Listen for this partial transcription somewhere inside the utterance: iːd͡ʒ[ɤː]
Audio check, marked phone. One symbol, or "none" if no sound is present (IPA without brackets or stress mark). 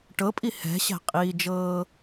ɤː